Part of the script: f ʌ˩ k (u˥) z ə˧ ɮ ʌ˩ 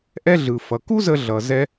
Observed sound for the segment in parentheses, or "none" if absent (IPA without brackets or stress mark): u˥